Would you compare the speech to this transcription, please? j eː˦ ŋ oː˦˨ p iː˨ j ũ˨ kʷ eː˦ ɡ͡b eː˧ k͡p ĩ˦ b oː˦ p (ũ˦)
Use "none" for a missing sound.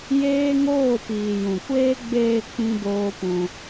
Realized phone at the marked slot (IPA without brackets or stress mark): ũ˧